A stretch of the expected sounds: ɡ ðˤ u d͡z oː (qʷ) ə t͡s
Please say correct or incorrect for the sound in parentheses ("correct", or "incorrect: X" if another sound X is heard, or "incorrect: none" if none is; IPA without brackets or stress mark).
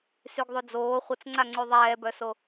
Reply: incorrect: χʷ